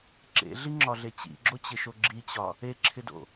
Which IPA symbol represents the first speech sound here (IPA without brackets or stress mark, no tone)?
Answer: ǁ